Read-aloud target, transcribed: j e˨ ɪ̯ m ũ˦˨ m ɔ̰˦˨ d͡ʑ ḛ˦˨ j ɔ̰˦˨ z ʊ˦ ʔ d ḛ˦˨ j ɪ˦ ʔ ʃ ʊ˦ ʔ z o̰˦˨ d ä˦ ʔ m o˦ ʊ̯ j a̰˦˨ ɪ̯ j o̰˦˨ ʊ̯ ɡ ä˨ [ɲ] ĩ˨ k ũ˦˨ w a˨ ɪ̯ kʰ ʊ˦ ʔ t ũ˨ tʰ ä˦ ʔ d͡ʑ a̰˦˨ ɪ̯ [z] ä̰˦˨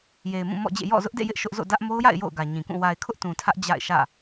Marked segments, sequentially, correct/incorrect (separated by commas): correct, incorrect